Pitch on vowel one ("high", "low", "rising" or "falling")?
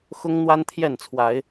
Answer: high